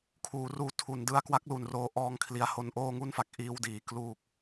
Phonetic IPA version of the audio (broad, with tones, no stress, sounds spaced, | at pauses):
kʰ uː˩˦ r uː˧ tʰ u˩˦ n d ɯ˧ a̯ k w a˥˩ k̚ l u˨˩ n r oː˧ ʔ ɔː˦˥ ŋ kʰ l i˧ a̯ h o˧ n ʔ oː˥˩ ŋ u˥˩ n f a˦˥ k̚ ʔ iː˧ w d iː˩˦ k l uː˨˩ k̚